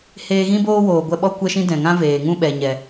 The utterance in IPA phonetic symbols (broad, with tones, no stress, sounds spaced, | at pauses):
h eː˧ ɣ ĩ˦ b oː˦ w oː˨ ɡʷ ɛ˧ ɓ ɔ˦ kʷ ɛ˦ ʃ ĩ˦ d ɛ̃˨ ŋ ã˦ v eː˨ ŋ ũ˦ ɓ ɛ˨ ɲ ɛ˨